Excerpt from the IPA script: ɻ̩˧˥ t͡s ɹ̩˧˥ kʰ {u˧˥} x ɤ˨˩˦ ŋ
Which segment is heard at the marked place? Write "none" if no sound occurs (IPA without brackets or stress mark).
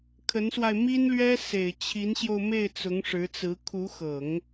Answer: u˧˥